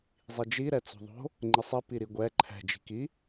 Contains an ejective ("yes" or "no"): no